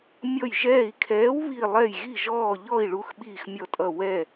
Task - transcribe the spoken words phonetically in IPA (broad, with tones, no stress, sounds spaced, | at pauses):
mʲ ɔ˧˩ j ʒ ɛː˧˩ i̯ kʰ ɛː˨˥ w β i˧˩ lˠ ɛ˧˩ j ɣ i˧˩ ʒ ɔː˧˩ ʎ ɔ˧˩ i̯ ɭ u˨˥ x ɓ iː˧˩ x mʲ ɔ˧˩ tʼ ʌ˧˩ w ɛ˧˩